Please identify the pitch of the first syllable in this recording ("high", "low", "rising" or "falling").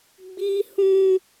high